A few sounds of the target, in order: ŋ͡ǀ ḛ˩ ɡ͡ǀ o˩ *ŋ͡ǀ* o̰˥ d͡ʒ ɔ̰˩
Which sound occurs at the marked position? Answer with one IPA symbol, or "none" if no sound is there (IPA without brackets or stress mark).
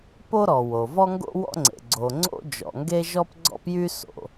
ŋ͡ǀ